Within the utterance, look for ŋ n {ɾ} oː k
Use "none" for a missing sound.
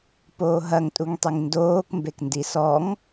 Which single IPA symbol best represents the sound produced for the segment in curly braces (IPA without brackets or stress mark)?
d